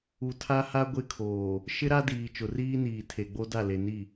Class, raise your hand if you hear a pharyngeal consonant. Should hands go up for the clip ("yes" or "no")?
no